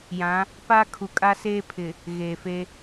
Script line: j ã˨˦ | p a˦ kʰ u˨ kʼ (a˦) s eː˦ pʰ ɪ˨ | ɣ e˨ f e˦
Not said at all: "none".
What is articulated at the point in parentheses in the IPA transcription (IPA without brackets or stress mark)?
a˦